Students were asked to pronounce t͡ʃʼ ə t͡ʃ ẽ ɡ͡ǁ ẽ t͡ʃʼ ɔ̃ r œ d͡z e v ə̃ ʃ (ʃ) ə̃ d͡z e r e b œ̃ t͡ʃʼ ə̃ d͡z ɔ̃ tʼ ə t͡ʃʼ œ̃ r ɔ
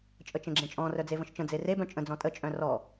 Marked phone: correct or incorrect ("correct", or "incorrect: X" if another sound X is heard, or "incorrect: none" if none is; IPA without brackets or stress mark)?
incorrect: t͡ʃ